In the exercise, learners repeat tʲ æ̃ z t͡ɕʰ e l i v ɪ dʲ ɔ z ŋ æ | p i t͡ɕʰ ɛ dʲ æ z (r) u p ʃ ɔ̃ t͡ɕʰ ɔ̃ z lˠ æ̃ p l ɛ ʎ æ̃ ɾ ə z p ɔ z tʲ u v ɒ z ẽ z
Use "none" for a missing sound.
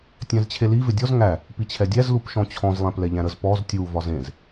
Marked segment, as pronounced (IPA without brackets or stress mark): l